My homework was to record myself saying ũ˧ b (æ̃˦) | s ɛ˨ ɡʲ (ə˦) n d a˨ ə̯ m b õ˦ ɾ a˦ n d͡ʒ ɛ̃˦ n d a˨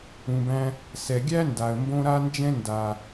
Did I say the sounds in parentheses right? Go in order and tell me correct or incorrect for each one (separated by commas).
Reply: correct, incorrect